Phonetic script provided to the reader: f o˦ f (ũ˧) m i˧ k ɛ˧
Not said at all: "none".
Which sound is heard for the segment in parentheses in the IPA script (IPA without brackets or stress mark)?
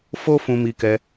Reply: ũ˧